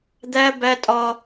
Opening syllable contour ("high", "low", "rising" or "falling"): high